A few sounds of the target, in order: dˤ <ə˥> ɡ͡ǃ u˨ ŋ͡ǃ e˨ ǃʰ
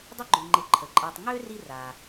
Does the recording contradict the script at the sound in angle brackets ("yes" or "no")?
no